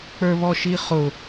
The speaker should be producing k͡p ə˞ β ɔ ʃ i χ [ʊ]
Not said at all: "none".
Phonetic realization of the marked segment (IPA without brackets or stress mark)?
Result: ʊ